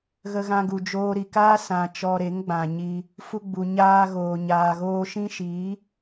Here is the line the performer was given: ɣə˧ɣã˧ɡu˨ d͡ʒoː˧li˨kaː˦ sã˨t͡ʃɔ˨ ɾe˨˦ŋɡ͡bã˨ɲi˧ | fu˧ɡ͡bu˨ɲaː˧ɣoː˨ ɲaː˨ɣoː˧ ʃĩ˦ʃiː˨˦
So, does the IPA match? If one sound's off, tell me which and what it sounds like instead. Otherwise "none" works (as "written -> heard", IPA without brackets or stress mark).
l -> ɾ